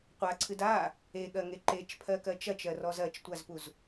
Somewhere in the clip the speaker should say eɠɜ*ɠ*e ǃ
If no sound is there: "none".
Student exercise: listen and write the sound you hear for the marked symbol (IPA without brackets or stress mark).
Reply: ŋ